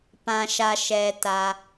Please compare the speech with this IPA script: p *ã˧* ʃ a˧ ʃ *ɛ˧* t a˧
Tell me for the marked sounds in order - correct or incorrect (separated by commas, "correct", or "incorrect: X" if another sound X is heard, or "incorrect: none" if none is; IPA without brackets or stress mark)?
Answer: correct, correct